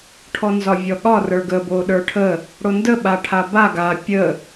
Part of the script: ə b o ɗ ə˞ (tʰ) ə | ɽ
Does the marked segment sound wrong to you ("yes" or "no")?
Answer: yes